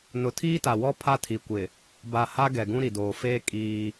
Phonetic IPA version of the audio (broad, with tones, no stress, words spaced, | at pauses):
nʊ˨tʰiː˦ta˨wɔ˦ pʰa˦tʰi˨kʷɪ˨ | ba˨ha˦ ɡɛ˨ɡũ˦ɾi˨doː˨ feː˦ kʼiː˦